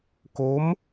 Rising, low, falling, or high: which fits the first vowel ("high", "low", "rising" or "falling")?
rising